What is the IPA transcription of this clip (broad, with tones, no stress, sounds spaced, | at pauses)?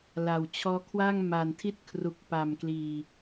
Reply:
l a˨˩ w t͡ɕʰ ɔː˦˥ kʰ w a˥˩ ŋ m a˨˩ n tʰ i˥˩ t̚ kʰ r u˨˩ k̚ p a˨˩ m k l iː˨˩